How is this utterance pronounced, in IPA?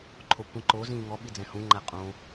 ǃʰ o kʷ ĩ ǃ o z ĩː ŋ ɔ ɓ i d͡z ɛ̃ h ũ ŋ͡ǃ æ qʼ õ

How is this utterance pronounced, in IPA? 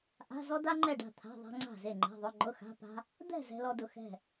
ʔ a̤˧˥˧ z ɔ˥ d a˥ ŋ͡ǃ ɛ˥˨ ɖ a̤˥˨ t̪ʰ a̤˧˥˧ ðˤ a̤˥ ŋ͡ǀ a̤˥˨ z e˥˨ ŋ͡ǃ ɛ̤˧˥˧ ðˤ ʊ˧˥˧ ŋ͡ǃ ʊ˧˥˧ x a̤˧˥˧ p a̤˥ | d̪ ɛ̤˥˨ z ɛ̤˥ l ɔ˥ d ʊ˥˨ x ɛ̤˥˨

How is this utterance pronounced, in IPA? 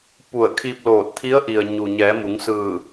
p u˧˩ ə̯ kʰ i˧ p̚ l oː˧˩ t̚ t̪ʰ i˧˥ ə̯ ʔ i˩ ə̯ ɲ u˩ ɲ ɛː˩˧ m u˩˧ ŋ s ɯː˧˩

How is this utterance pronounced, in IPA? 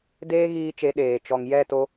d eː˦ ɣ iː˧ t͡ʃ e˨˦ ɗ eː˨ t͡ʃ ɔ˨ ŋ j ɛ˦˨ t o˧

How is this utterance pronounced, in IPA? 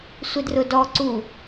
sʷ ɪ d r ʊ d ɔ ǀ u

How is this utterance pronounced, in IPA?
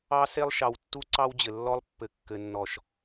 ɑ˦ s e˦ lˠ ʃ ɑ˨ w tː u˦ ǀ ɑ˦ w d͡ʑ ɘ˨ lː ɔ˦ lˠ pː ɘ˨ kː ɘ˨ nː ɔ˨ ʃ

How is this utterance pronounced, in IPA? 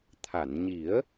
t̪ʰ a˨˩˨ n ɲ i˨˩˦ ə̯

